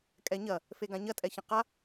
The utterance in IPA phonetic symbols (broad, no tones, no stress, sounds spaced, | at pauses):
kʼ ɛ ɲ ɐ | f e ɡ ã ɲ ɐ tʼ ɛ ç ɐ̃ q a